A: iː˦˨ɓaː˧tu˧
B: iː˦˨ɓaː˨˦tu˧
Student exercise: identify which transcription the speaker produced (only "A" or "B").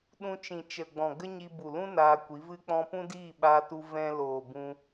A